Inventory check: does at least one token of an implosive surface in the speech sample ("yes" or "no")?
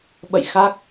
yes